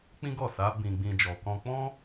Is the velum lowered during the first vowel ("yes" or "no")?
yes